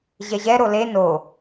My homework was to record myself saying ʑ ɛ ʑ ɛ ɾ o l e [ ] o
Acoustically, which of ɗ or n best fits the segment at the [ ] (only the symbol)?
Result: n